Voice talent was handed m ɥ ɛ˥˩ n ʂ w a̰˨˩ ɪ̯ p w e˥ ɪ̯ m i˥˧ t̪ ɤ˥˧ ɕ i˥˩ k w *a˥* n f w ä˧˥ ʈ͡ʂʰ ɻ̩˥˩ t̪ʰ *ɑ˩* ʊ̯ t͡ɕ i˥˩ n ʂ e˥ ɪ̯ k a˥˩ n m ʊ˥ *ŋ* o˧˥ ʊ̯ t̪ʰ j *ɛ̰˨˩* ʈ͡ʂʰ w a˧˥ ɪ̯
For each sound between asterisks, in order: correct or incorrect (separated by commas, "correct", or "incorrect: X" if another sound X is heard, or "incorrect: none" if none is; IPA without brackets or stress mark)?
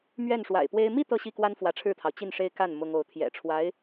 correct, correct, correct, correct